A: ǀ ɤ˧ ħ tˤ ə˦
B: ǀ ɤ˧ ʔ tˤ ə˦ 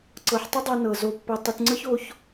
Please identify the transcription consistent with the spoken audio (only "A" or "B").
A